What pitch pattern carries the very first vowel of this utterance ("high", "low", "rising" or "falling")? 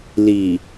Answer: low